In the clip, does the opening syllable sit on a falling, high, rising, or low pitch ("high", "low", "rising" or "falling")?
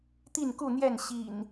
falling